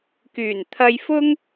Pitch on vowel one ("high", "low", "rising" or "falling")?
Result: low